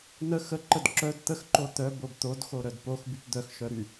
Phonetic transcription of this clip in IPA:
n ə x ə ǃ ə d ǁ œ d t̪ ə x ǃ o t̪ œ b o b t̪ o d x o ɾ œ d p o x b y p d̪ œ x ʃ œ ɾ y

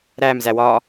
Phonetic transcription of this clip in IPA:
ɾ æ m z æ w ɒ

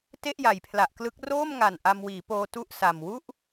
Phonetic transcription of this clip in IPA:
t e˥˩ ʔ j a˩˦ j pʰ l a˨˩ ʔ k l ɯ˦˥ k̚ r oː˥˩ m ŋ a˨˩ n ʔ a˧ m w iː˩˦ p oː˧ t u˥˩ ʔ s a˨˩ m w u˥˩ ʔ

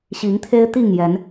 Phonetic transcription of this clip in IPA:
ɕ i˨˦ ŋ t̪ʰ e˦ ɪ̯ t̪ i˥˨ ŋ j ɛ˨˦ n

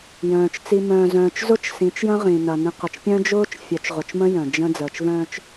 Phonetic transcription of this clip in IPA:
j œ̃ː˨ t͡ʃ t͡s i˨ m œ̃ː˨ z œ̃ː˨ t͡ʃ z ʊ˦ t͡ʃ s ĩ˨˦ t͡ʃ j ə̃˦ ʁ ĩ˨ n ɐ˨ n ĩ˨ q ə˨ t͡ʃ pʲ œ̃˦ d͡ʒ ʊː˦ t͡ʃ fʲ œ˨˦ t͡ʃ ʁ ʊ˨ t͡ʃ m ə̃˦ j œ̃˨ d͡ʒ ə̃˦ d͡z əː˨ t͡ʃ v œ̃ː˦ t͡ʃ

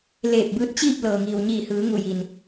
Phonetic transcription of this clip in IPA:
l eː˧˩ p̚ b ɯː˧ t̚ t͡ɕ iː˥˨ p̚ l ɤː˩ ŋ iː˩ w ɲ iː˧˩ h ɯː˩˧ ŋ u˧˩ j i˩ n

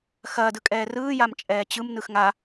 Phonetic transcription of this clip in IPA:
x ɐː d ɯ kʼ ɛː r ɯː j a m t͡ʃʼ ɛː t͡ɕ ɯ m n ɯ x ŋ a

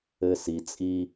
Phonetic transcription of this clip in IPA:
ɘ˦ s i˨ t͡sʼ i˦

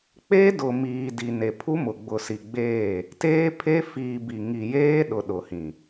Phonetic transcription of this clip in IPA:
k͡p e˦ d ʊ˨ m iː˨ d i˨ n e˨ pʰ u˦ m ʊ˨ ɡ͡b ʊ˨ s i˨ ɡ͡b eː˦˨ | t eː˦ pʰ e˦ f iː˨ b i˨ ŋ i˨ j eː˦ ɗ ʊ˨ ɗ ʊ˨ h ĩ˨

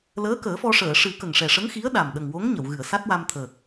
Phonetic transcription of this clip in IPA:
l əː˧˥ k əː˨˩˦ f ɔ˧ ʂ əː˨˩˨ ʂ ɨ˨˩˦ k ə˨˩ ŋ ʂ ɛ˨˩ ʂ ə˧˥ ŋ x i˧˥ ə̯ ɗ a˨˩ m ɗ ə˨˩ ŋ w o˧˥ ŋ ɲ ə˨˩˨ w ɣ ɨ˨˩˨ ə̯ s a˦˥ t̚ w a˧ m t̪ʰ əː˨˩ k̚

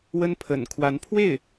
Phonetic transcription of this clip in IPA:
w ə˥ n pʰ ə̰˨˩ n kʰ w a˧˥ n pʰ w e˥˩ ɪ̯

